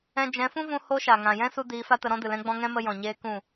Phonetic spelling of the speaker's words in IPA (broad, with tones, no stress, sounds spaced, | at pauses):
ɛ̃˦ d͡ʒ ɛ̃˨˦ f ũ˦ v ũ˧ h o˦ ʃ a˨ ŋ ã˨ j ɛ̃˦ s u˧ d iː˨˦ f a˦ t ə˧ ɾ ɔ̃˦ d ɨ˨ l ɛ̃˦ ɡ͡b ɔ̃˦ ŋ ɛ̃˦ m ə˧ j ɔ̃˨ ɲ eː˦ k ũ˦˨